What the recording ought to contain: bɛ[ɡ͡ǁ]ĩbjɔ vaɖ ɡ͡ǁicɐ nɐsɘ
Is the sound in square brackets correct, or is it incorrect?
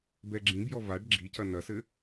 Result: correct